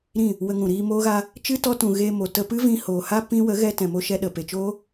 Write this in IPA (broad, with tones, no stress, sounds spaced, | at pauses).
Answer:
ɾ ĩ˦˨ | w ə˧ ŋ ũ˨ ɾ iː˧ m oː˦ ɣ a˦ | t͡ʃ ɨ˦ t ɔ˧ t ũ˨ ɣ eː˧ m o˨ t ə˧ p ɨ˦ v ĩ˧ h oː˨ h a˦ p ĩ˦ w ə˨˦ ɣ ɛ˧ t ɛ̃˨ m o˧ ʃ ɛ˧ ɗ ə˨ p e˨ t͡ʃ oː˦